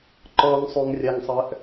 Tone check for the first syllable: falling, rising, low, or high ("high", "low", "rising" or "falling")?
high